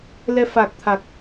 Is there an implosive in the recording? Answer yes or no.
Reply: no